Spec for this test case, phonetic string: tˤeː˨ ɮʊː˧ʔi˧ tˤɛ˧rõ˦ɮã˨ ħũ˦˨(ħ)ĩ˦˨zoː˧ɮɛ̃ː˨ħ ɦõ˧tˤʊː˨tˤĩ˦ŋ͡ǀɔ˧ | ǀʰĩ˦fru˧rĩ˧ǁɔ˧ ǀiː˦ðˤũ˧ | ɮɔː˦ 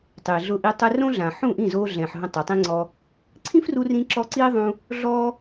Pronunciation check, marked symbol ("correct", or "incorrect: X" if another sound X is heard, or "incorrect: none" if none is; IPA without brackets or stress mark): incorrect: ʔ